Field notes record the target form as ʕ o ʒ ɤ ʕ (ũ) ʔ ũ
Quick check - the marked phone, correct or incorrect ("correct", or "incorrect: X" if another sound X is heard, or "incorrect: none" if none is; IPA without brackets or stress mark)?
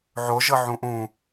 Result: correct